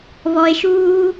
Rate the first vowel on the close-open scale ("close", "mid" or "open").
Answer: mid